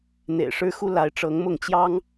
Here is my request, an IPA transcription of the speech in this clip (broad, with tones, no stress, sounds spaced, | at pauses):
n̪ ḛ˨˩ ɪ̯ ʂ ɻ̩˦ x u˦ l a˨˦ ɪ̯ ʈ͡ʂ ɤ˨˦ ŋ m ʊ˥˨ ŋ t͡ɕ j ɑ˦ ŋ